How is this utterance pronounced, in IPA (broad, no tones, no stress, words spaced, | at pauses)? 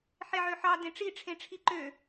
ħeʕøħɑ dẽʈ͡ʂiʈ͡ʂʰẽʈ͡ʂʰi ǃø